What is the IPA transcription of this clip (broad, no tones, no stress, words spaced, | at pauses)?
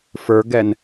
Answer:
fə˞ɡɛn